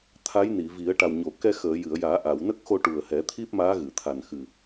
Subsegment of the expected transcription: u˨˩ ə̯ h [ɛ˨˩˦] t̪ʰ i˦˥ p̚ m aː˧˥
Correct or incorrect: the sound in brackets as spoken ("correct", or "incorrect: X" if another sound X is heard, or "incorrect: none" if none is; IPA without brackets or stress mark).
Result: correct